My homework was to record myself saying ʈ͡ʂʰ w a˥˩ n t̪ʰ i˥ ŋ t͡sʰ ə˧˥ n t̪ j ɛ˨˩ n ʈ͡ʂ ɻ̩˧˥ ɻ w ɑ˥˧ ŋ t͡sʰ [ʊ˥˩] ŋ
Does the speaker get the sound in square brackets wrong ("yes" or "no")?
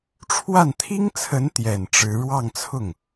no